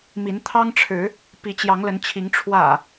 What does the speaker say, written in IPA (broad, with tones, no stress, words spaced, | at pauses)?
mi˨˦n t̪ʰɑ˦ŋʈ͡ʂʰɻ̩˨˦ | pi˨˦t͡ɕjɑ˨˦ŋlə˨˦nt͡ɕʰi˨˦ŋ ʈ͡ʂʰwä̰˨˩